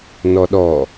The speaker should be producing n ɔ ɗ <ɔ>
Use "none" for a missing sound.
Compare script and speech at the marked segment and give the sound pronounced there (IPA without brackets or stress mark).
ɔ